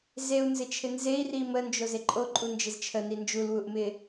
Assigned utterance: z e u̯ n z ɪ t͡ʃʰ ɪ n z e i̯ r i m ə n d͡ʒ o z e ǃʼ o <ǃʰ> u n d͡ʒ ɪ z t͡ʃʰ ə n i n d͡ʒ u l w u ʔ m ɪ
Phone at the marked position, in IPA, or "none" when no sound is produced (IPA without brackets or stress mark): ǃʼ